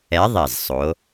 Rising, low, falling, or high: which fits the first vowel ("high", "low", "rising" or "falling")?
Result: rising